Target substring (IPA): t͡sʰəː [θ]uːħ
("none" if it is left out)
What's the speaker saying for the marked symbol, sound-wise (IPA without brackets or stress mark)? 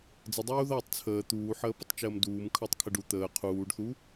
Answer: t̪